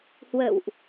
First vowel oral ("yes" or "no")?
yes